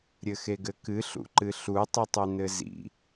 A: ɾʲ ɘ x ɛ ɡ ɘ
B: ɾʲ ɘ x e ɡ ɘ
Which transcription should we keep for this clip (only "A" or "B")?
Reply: B